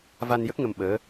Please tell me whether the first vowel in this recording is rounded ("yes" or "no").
no